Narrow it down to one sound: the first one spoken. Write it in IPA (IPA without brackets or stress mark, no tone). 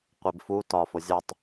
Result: qʷ